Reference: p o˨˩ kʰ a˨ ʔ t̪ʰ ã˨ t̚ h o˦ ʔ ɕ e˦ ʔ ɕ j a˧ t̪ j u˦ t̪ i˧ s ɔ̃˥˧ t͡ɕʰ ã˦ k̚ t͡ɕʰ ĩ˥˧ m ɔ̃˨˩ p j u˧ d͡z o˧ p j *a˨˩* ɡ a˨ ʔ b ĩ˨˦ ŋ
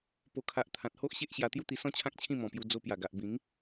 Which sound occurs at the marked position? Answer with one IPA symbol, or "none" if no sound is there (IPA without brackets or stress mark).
a˨˩